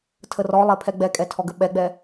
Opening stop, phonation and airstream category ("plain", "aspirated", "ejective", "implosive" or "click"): aspirated